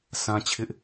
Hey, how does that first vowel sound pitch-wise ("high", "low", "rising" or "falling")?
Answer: high